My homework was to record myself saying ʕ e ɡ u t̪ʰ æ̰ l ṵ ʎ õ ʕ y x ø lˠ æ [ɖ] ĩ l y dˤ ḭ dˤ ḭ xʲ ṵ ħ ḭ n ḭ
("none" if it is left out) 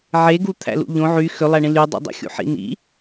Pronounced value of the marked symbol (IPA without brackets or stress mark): ɳ